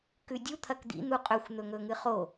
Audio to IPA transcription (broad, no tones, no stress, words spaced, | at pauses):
kʉdʲu t̪ʰɐkd̪ḭ n̪uqʼɵxʷ n̪ɵŋɵŋɨχo